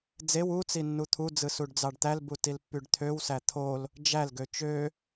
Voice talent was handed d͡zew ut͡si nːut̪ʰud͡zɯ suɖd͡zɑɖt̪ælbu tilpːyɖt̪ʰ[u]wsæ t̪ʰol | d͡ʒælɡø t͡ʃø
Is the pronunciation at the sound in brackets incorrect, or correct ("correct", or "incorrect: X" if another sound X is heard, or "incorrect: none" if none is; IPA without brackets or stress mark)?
incorrect: ø